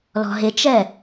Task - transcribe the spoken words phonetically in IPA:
l ɔ̤ ɦ ɪ t͡ʃ ɛ

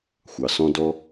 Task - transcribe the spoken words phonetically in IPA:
xʷ ɑ˩ s ɔ̃˧ d ɔ˧

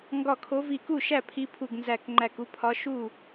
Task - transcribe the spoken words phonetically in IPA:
ŋ ɡ ɒ˧˩ kʰ o˨˦ v i˧˩ k u˥˩ ʃ æ˥˩ pʰ i˨˦ pʰ u˧˩ ɡ n z æ˧˩ k ŋ͡ǃ æ˧˩ k u˥˧ pʰ ɒ˨˦ ʃ u˥˩

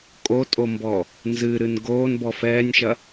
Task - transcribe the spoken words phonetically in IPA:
kʼ o tʼ o m b ɔ | n z ɨ ɾ ɨ n ɡ oː n b ɔ f ɛː nʲ ʃ ɐ

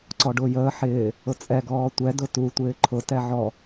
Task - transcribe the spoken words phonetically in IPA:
ǀ ɔ ɖ ʊː j əː ħ ɪː | ʊ t͡sʼ ɛ ɡ ɔː tʷ ɛ d ʊ t u tʷ ɪː ǃʰ ʊ t ɛ ʕ ɔ

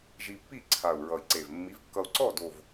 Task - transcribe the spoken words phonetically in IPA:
ʒ i˧ pː i˥˩ ǀʰ a˨˩ u̯ ɹ ʌ˨˩ i̯ ǀ e˨˩ v mː i˨˥ v kː ʌ˧ u̯ ǀ ɔ˥˩ d o˨˩ v

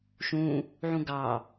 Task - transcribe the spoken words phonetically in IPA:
ʃ ũ | ʕ ũ ɡ ɑ

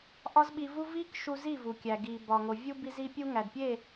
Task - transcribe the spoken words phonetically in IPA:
ʔ ɒ˦ z ɓ i˧ v u˦ v i˦ k ʃ u˧ z i˦˨ v u˨ kʲ æ˨ ɡ i˨ b ɒ˨ ŋ o˨ vʲ u˧ b i˧ z i˧ pʲ u˧ ŋ æ˨ d pʲ e˦˨

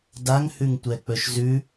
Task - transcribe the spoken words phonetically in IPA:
d a ŋ h ʉ ŋ tʷ ɛ k͡p ɵ ʃ z ʉ

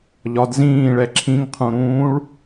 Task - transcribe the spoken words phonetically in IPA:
ʎ ɒ d z ĩː ɭ ɛ ǁʰ ĩ ŋ qʰ ũ ɾ ũː ɭ

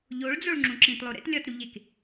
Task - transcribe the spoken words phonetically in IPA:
ʎ o ɭ d͡z o ɭ ŋ͡ǁ ũ ǁ ĩ t lˠ o ɾ ḛ t lʲ ɒ t ɾ u ʎ e k

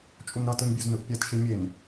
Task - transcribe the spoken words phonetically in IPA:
t͡ʃʼ u n ɾ ʌ t ɯ n bʲ o z n ɯ ʔ pʲ a t ʃ i mʲ e n

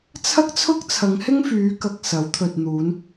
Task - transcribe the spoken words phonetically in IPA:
t͡sʰ ɐ˥ k̚ t͡sʰ ʊ˥ k̚ t͡sʰ ɐ˨˧ ŋ h ɪ˥ ŋ f yː˨˧ k ɐ˨ k̚ s ɐ˨˥ w t̪ʰ ɵ˨ t̚ n̪ uː˨˧ n

